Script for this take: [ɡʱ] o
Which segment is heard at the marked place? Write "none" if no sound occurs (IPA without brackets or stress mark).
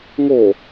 ŋ